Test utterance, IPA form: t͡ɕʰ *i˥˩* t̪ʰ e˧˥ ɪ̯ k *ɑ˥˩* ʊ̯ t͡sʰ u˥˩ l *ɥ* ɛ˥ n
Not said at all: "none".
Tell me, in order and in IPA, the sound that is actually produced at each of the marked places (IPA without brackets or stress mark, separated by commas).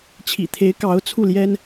ḭ˨˩, ɑ˧˥, j